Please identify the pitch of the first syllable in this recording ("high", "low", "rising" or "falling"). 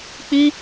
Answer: high